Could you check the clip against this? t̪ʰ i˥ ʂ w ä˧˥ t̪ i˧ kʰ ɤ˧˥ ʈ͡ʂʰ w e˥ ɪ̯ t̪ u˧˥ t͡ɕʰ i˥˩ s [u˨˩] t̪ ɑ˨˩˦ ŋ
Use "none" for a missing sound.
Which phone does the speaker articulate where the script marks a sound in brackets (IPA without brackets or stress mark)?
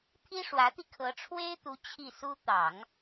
u˥